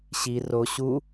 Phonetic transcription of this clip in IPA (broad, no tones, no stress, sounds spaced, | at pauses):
ɕ i r o ɕ u